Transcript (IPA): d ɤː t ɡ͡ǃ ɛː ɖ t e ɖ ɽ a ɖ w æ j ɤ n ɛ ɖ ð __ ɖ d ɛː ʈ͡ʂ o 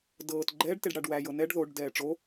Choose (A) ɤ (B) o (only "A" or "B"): B